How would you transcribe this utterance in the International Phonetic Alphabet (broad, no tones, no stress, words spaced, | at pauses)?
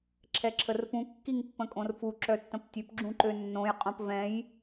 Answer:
ǁʰɛǁʰərpũ kːiŋpːə̃kʼõrfu ǁœtːə̃ptʲøp ɡ͡ǁũǃønːõj qʼõpvɛ̃j